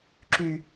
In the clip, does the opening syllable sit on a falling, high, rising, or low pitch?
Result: low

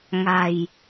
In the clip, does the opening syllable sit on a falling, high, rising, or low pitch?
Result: low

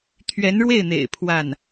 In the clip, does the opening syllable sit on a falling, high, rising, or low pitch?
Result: rising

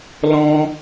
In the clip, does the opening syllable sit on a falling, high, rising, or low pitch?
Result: high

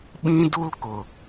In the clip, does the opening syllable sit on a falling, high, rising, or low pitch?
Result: high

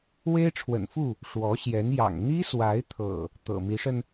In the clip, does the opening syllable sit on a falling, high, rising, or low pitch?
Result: high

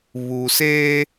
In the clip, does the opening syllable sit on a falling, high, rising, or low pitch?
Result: low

